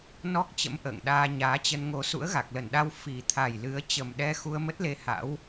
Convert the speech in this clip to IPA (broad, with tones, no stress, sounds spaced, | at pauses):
n ɔ˦˥ k̚ t͡ɕ ə̰˧˥ m ʔ ə̰ː˧˨ ŋ ɗ aː˧ ɲ aː˨˦ t͡ɕ ə˧ n ŋ o˧ s ṵ˧˥ ə̯ ɣ a˨˩ k̚ l ə˧˩ n ɗ a˧ w f i˨˩ t̪ʰ a˨˩ j l ɨ˨˦ ə̯ t͡ɕ ə˨˩ m ɗ ɛ˧ x u˧ ə̯ m ə˦˥ t̚ l e˧ h a̰˧˥ w